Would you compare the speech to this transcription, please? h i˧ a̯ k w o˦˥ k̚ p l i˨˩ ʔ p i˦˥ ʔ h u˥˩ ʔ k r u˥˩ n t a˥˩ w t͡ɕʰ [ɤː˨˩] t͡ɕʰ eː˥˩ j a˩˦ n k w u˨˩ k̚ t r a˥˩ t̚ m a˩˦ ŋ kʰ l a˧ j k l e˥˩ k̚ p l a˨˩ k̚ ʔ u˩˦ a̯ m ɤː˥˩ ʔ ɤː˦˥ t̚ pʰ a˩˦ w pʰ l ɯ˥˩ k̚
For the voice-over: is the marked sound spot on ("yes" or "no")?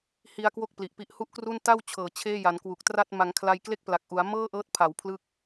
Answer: yes